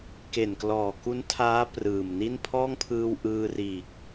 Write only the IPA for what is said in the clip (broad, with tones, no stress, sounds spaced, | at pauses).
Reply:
k e˨˩ n k l ɔː˨˩ k u˦˥ n tʰ aː˦˥ p r ɯː˨˩ m n i˥˩ n pʰ ɔː˥˩ ŋ pʰ ɯː˧ w ʔ ɯː˧ r iː˨˩ k̚